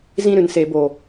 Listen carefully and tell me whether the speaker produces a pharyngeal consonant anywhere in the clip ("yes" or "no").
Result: no